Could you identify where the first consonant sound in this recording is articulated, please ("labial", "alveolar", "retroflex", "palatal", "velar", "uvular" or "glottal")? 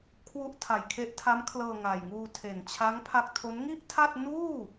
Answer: velar